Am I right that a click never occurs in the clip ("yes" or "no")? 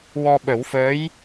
yes